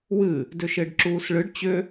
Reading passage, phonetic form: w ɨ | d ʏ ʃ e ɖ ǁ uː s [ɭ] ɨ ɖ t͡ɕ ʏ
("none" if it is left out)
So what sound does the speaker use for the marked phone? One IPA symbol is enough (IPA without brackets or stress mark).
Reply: ɭ